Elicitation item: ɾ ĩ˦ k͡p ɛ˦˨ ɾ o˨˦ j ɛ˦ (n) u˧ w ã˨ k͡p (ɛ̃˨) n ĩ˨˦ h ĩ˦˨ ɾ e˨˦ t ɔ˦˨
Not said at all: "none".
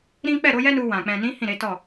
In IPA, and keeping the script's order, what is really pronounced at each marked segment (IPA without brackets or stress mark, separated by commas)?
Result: n, ɛ̃˨